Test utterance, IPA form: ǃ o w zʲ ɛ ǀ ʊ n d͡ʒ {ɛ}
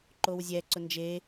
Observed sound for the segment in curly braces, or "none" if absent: e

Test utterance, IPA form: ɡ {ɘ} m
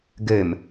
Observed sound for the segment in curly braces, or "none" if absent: ɘ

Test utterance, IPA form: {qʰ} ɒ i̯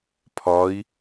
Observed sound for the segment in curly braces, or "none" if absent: pʰ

